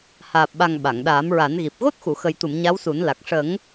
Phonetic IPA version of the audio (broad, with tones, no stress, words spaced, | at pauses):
haː˨˩p̚ɓa˨˩ŋ ɓa˨˩˨ŋɗaː˨˩˦mɹa˨˩˦nɣi˨˩p̚ ɣo˦˥t̚xu˨˩˨xə˨˩jt̪u˨˩˨m ɲa˧˥wsu˨˩˦nla˨˩k̚ ʂə˨˩˦ŋ